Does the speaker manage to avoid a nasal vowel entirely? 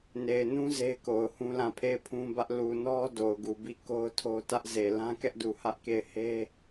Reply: no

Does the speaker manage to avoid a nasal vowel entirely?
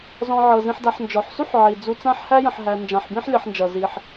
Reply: no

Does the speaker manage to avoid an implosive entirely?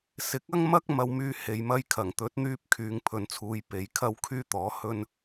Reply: yes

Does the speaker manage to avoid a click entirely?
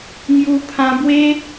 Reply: yes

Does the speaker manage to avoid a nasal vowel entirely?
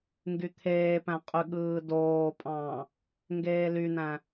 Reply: no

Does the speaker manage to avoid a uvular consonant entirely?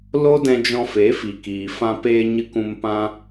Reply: yes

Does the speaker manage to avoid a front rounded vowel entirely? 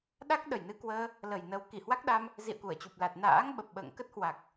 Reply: yes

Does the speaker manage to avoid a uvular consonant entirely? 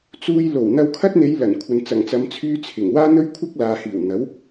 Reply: yes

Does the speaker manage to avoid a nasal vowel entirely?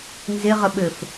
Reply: yes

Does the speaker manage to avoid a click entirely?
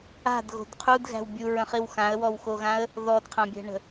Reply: yes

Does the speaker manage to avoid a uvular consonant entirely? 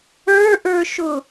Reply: yes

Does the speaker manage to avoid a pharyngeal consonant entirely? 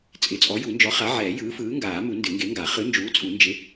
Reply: no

